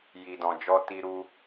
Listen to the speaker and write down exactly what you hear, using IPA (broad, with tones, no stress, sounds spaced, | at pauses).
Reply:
j i˨ d ɔ̃˨ d͡ʒ ɔ˧ t i˧ ɾ u˧